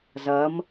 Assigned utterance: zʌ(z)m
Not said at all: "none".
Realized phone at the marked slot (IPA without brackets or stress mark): none